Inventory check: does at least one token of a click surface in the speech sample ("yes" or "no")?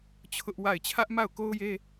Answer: no